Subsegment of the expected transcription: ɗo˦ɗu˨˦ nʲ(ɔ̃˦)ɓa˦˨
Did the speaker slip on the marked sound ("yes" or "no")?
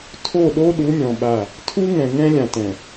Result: yes